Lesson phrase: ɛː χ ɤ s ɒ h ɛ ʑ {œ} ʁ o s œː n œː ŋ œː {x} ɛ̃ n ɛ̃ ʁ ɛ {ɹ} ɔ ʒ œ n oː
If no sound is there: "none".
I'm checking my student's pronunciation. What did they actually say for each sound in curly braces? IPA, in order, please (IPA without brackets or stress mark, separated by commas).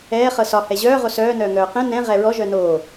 œː, q, ɹ